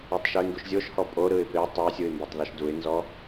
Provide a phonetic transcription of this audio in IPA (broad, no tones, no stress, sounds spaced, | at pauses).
o tˤ ʃ u ɪ̯ ŋ ɡ u ʃ zʲ o ʃ h ɔ pʼ o ɾ ɯ ɪ̯ p e tˤ ɛ ɪ̯ sʲ ɯ ɪ̯ m b o tˤ ð ɔ ʃ d u ɪ̯ n z ɔ